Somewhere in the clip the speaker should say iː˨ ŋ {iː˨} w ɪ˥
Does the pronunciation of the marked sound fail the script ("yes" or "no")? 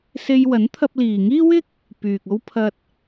yes